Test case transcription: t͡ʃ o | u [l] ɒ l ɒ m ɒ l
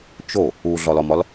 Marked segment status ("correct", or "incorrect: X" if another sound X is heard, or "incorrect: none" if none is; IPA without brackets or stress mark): incorrect: ɮ